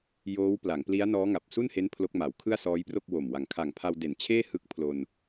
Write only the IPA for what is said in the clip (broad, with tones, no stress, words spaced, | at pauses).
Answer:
joː˦˥wpla˩˦ŋpli˦˥a̯ nɔː˦˥ŋa˨˩p̚su˥˩nhe˦˥n pʰlo˦˥k̚ma˩˦w kʰɯ˥˩a̯sɔː˦˥jpro˥˩k̚ wo˨˩mwa˨˩ŋ kʰa˨˩ŋpʰa˧wde˨˩nt͡ɕʰeː˥˩ hɯ˦˥k̚ pʰlo˧n